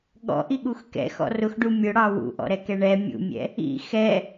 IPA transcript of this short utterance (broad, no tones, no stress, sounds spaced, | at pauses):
ɠ ɔ̰ ʔ i ɠ u x k ɛ̰ x ɔ̰ r ʊ x ɖ u mʲ ʊ ɽ ɑ w ṵ ʔ ɔ̰ ɾ ɛ k ɛ ɳ ɛ mʲ ṵ mʲ ɛ̰ | ḭ x ɛ